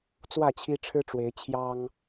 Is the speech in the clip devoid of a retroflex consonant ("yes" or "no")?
no